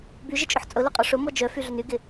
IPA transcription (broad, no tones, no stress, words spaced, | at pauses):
byʒɪt͡ʃʼʊħ t͡sʼʊlʊqʼɔ ʂʊmɔ d͡ʒœfyɮʏn yɡɪ